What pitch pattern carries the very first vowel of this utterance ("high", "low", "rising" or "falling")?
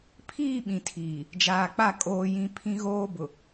falling